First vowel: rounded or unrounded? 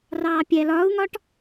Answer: unrounded